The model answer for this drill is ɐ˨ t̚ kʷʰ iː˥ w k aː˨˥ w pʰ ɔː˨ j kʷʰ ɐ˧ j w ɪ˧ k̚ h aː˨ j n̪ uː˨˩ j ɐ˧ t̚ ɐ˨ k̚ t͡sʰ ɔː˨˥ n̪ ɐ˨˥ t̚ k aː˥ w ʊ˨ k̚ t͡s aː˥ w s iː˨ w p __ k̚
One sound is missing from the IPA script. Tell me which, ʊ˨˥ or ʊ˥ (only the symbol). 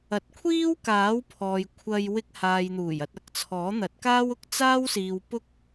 ʊ˥